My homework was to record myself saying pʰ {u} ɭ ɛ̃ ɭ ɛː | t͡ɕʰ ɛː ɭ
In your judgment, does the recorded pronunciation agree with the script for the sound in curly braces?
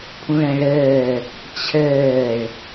no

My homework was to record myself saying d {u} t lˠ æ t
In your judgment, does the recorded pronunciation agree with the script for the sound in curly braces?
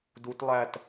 yes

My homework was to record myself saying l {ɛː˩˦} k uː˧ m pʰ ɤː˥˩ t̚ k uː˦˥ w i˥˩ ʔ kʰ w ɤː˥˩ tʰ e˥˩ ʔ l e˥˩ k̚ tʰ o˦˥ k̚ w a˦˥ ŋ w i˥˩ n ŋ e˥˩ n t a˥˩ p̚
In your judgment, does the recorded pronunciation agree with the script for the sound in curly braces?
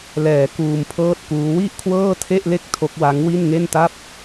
yes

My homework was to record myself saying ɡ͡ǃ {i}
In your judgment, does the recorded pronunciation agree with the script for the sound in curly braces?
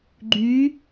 no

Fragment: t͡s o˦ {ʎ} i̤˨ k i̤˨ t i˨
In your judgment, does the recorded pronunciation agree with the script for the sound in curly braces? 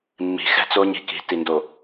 no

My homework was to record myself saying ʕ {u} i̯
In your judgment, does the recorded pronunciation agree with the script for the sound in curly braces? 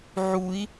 yes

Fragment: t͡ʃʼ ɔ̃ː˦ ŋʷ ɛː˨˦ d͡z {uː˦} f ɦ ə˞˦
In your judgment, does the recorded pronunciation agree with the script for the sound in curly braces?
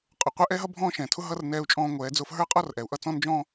no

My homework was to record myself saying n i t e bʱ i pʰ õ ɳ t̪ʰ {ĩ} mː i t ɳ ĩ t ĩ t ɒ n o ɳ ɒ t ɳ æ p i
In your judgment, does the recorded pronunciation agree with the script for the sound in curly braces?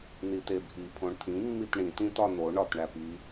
yes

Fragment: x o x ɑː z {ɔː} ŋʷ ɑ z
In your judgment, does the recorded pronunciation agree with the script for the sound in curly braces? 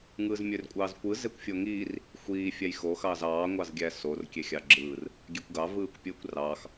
no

